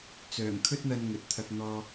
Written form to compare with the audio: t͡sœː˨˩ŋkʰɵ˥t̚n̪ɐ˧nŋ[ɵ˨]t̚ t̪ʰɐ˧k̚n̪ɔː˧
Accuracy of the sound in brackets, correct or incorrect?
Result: correct